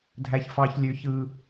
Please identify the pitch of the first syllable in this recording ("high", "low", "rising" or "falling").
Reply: high